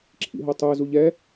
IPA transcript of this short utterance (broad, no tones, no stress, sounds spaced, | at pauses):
ǁʰ ḭ ɦ o tˤ ø z u ʎ ɛ